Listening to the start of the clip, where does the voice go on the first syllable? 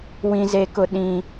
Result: high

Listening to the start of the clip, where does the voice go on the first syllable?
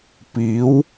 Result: rising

